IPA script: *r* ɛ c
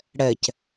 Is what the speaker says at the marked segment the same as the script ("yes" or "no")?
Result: no